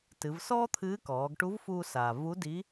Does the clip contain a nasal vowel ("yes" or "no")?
no